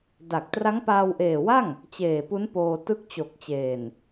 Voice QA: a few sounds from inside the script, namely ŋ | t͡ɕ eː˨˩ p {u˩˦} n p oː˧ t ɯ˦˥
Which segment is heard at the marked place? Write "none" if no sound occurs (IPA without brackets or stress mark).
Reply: u˦˥